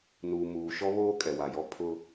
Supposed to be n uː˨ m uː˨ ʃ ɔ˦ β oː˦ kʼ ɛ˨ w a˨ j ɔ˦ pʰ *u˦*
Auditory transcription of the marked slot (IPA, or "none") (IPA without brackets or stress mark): ʊ˦